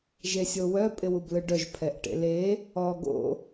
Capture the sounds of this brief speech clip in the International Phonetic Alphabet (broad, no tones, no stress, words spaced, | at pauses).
ʒesʲowœ pʼɪwublɯɖœʒ pʰɛʔʈḛle | ɔ ɡo̰